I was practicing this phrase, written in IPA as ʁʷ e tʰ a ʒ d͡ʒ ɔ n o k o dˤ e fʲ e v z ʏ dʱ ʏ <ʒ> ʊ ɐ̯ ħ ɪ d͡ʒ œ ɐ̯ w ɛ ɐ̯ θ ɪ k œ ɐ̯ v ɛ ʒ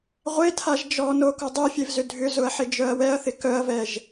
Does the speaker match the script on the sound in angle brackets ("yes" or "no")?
no